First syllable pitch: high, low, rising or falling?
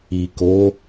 low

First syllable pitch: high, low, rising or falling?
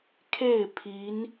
falling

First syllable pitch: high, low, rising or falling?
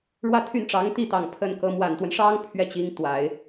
falling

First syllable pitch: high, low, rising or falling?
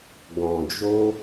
low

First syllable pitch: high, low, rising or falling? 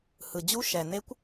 low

